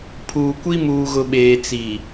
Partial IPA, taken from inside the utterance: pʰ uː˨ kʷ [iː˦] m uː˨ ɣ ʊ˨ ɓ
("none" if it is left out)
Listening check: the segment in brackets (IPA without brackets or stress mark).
i˦